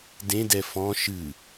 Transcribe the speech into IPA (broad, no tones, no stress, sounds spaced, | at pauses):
d ẽ d ɛ f ɔ̃ ʃ ɨ